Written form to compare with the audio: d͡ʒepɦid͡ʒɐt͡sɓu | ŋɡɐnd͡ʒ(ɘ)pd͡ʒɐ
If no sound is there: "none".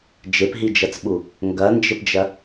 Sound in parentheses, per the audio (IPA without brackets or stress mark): ɘ